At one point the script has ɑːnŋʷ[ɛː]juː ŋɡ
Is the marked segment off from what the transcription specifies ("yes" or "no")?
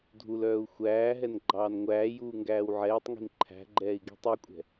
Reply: yes